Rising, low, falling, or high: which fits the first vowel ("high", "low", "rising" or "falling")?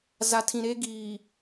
low